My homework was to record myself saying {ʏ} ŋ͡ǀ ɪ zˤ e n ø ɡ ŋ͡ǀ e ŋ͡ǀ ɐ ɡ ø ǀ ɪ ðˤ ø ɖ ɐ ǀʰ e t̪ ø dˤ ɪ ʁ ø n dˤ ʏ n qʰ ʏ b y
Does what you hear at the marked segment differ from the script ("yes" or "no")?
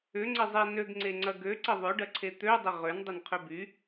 no